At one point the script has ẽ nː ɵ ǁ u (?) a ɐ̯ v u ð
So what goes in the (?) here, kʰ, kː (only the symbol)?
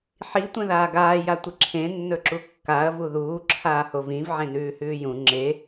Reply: kː